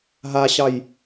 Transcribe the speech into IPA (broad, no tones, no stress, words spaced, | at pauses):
ɦaɕɑj